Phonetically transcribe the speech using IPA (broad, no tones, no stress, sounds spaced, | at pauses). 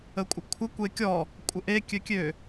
ə kʷʼ ə kʷʰ ə kʷ e kʲ ɔ | kʷʼ ə ʔ e kʲ ø kʲ ø